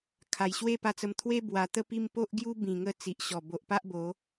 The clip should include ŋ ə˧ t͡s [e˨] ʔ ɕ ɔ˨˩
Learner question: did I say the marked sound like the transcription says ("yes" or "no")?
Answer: no